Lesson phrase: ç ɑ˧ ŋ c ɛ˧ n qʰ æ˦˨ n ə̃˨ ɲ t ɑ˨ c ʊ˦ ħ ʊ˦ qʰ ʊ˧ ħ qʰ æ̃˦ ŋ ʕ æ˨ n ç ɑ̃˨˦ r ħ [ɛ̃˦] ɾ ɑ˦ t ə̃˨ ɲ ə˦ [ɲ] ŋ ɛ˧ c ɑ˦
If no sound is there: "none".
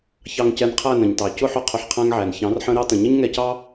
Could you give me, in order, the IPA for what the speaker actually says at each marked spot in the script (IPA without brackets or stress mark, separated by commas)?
ə̃˦, ɲ